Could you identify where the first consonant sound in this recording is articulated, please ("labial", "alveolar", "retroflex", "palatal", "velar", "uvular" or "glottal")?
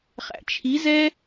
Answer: uvular